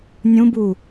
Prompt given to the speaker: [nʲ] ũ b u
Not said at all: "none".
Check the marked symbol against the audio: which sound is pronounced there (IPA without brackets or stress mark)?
nʲ